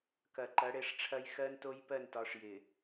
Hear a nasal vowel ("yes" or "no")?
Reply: no